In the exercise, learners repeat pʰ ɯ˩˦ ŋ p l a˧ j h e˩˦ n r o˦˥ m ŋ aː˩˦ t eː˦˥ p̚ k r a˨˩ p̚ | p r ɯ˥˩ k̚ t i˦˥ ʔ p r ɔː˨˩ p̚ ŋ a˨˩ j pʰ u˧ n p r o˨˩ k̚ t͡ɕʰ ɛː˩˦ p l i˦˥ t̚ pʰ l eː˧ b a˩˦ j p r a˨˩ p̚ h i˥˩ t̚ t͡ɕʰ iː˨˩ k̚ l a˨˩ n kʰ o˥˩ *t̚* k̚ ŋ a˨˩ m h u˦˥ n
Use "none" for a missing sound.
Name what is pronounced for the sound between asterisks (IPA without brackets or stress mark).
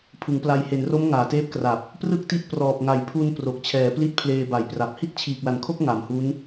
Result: none